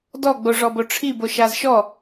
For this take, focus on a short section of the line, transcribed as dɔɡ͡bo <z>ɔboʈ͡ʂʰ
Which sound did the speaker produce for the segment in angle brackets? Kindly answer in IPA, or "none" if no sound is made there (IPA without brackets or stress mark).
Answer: ʐ